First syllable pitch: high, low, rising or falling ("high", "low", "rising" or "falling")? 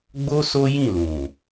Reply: high